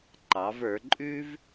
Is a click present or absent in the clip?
present